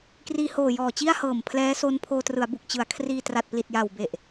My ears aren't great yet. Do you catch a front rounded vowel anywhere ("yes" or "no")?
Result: no